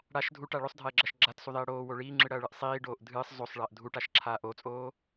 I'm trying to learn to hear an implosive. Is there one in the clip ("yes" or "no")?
no